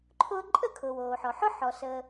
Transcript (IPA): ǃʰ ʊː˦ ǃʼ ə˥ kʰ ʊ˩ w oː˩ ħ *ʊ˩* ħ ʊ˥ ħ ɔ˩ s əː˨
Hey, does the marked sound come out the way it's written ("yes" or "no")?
no